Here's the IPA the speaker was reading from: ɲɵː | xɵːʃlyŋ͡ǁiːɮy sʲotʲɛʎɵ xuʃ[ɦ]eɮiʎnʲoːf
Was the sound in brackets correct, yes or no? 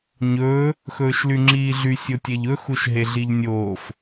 yes